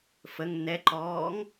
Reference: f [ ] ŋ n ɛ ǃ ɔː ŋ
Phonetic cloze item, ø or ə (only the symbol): ə